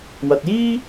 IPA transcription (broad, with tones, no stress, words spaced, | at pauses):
wɐ˨t̚jiː˥